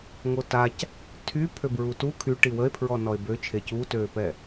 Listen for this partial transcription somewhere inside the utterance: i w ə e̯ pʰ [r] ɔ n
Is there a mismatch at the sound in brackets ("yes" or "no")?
yes